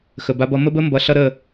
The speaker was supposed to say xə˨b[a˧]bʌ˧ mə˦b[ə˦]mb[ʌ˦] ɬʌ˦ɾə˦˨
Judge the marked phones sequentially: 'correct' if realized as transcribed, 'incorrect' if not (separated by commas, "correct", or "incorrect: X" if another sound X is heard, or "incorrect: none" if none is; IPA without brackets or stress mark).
correct, correct, incorrect: ʌ˨˦